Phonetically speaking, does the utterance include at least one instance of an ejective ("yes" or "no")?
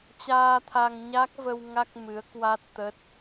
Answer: no